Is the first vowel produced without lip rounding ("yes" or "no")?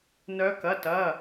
no